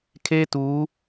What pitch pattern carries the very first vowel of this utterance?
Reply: high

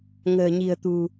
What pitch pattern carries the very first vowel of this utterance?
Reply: low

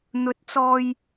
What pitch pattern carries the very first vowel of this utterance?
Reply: rising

